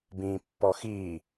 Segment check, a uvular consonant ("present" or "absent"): absent